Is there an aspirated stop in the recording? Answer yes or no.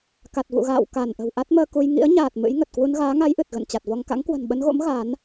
no